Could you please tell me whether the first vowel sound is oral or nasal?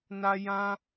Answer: oral